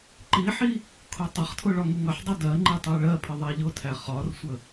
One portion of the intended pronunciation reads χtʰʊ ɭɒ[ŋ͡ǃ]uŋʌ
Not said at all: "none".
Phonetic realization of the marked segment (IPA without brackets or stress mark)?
ŋ